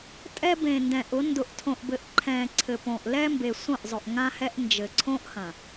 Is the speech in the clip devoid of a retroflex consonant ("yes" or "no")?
yes